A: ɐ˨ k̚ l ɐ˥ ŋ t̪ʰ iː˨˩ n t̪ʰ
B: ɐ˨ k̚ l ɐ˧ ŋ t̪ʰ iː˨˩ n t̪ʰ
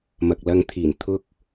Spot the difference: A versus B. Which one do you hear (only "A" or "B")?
B